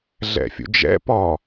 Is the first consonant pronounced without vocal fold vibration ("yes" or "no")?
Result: no